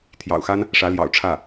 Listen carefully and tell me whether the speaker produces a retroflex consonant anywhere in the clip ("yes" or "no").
yes